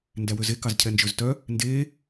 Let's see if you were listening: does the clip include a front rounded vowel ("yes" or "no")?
yes